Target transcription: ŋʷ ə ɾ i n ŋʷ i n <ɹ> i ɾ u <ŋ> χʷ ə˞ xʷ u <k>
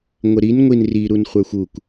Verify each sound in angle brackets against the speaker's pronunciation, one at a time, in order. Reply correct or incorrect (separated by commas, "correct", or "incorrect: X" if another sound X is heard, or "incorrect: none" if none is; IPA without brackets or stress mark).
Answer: incorrect: r, incorrect: n, correct